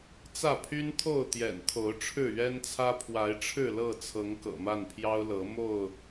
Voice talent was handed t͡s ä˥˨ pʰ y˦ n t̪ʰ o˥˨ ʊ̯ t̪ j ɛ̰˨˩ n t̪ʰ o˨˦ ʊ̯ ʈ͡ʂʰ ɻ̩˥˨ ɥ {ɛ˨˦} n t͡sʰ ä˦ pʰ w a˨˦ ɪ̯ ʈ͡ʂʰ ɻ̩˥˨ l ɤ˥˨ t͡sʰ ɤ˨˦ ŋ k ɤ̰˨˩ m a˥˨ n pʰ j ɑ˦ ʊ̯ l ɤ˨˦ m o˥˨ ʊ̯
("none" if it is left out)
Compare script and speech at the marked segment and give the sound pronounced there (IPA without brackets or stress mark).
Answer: ɛ˦